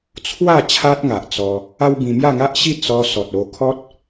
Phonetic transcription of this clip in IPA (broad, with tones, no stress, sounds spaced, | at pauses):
t͡sʰ w a˥˧ t͡ɕʰ a˦ t̚ ŋ a˨ ʔ t͡s ɔ˧ | a˦ w b ĩ˧ m j a˥˧ ŋ a˦ ʔ ɕ i˥˧ t͡s ɔ˧ s ɔ˨ t̚ o˧ kʰ ɔ˦ t̚